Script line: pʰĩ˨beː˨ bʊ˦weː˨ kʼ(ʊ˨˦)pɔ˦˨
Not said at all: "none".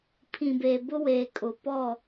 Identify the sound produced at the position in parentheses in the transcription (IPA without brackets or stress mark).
ʊ˨˦